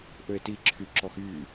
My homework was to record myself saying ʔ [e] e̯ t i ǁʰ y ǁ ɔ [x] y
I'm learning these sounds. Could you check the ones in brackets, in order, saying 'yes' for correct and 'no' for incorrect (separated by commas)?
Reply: no, yes